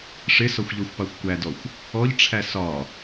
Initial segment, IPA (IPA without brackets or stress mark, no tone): ʂ